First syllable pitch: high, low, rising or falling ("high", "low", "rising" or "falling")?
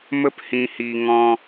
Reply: high